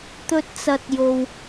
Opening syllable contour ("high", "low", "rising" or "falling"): high